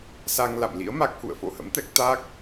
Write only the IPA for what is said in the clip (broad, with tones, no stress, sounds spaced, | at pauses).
s a˧ ŋ l a̰˧˨ m l ḭ˧˥ ə̯ m a˦˥ k̚ h ṵ˧˨ ə̯ f o̰˧˨ h ə̰˧˥ m t̪ ɛ˦˥ k̚ t̪ a˦˥ k̚